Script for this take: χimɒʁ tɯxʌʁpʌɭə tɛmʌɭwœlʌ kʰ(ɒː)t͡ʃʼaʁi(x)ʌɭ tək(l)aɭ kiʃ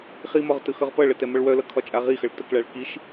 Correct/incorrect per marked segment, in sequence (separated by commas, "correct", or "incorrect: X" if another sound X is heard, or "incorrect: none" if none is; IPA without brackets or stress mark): incorrect: ɒ, correct, incorrect: ɭ